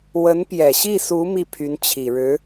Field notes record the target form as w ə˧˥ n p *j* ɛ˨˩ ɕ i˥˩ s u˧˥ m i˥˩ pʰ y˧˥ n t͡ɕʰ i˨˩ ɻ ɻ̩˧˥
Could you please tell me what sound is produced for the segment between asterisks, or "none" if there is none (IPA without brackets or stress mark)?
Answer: j